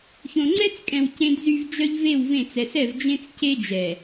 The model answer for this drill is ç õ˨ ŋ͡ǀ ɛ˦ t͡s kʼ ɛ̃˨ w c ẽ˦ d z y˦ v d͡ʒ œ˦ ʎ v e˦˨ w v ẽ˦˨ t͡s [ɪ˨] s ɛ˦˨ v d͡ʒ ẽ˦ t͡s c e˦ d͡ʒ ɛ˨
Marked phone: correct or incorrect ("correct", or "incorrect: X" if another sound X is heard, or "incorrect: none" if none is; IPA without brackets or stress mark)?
incorrect: ɛ˨